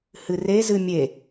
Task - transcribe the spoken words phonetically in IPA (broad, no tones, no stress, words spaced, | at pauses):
hɨre zɨmʲe